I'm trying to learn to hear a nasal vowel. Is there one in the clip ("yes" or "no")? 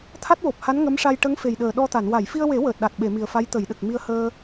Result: no